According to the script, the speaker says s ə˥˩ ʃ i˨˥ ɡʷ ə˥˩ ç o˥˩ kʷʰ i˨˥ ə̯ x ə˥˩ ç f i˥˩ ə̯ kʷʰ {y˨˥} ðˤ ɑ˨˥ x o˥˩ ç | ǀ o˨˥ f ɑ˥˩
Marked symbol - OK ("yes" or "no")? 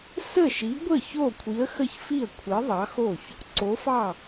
no